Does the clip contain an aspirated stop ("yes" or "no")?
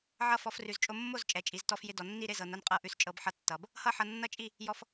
no